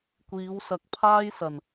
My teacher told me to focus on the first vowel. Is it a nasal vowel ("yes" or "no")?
no